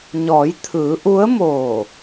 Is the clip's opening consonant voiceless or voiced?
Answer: voiced